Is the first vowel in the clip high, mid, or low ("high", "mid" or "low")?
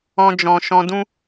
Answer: mid